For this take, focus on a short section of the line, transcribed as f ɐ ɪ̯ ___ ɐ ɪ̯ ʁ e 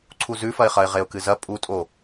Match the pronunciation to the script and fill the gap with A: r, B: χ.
B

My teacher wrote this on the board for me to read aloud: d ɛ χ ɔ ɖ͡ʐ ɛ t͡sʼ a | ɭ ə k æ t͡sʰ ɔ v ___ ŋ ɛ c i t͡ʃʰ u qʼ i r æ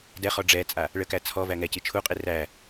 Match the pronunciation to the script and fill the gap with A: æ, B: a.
A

